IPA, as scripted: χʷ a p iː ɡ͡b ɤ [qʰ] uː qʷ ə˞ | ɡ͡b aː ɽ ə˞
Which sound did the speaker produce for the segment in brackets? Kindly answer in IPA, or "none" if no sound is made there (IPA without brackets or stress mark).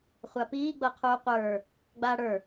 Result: qʰ